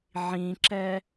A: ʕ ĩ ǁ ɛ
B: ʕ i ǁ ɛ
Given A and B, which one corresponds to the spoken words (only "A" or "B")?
A